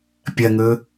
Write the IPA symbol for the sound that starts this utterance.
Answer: pʲ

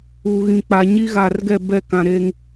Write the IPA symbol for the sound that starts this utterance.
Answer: u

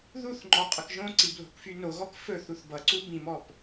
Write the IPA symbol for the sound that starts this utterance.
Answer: ð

